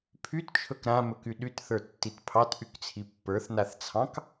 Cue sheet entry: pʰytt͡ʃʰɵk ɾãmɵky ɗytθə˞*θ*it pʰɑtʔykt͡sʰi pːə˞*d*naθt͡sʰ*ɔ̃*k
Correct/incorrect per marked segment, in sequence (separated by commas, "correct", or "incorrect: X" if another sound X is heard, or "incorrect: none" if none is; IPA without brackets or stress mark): incorrect: tː, incorrect: θ, incorrect: ɑ̃